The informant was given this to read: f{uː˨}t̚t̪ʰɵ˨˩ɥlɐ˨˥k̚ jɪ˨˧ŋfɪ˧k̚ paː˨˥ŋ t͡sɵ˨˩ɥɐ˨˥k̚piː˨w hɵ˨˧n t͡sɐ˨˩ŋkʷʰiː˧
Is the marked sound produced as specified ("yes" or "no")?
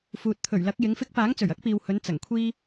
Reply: yes